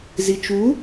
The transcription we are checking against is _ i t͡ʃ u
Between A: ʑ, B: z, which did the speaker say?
B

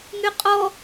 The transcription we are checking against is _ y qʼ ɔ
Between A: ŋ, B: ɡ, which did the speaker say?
A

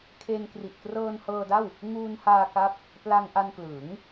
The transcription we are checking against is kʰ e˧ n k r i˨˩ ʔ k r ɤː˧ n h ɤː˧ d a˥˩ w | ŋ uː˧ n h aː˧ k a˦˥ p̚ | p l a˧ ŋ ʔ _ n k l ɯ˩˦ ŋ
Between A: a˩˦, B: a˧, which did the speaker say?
B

